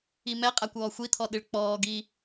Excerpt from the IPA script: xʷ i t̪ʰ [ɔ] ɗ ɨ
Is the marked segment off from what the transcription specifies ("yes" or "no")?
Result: no